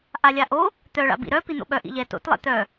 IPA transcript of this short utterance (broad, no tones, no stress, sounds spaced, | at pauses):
ʔ a lʲ a ʔ o | t̪ œ ɭ a̰ b ḭ ɾ œ p i n̪ o̰ ɓ œ ʔ ḭ ʎ ɛ t o̰ t lˠ ɛ̰ t̪ œ